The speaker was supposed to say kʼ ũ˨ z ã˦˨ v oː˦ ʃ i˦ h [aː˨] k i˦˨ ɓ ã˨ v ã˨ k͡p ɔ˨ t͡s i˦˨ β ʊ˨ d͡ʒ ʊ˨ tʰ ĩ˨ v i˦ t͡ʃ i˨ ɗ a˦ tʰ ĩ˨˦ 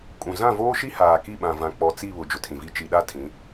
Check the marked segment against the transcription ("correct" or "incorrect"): correct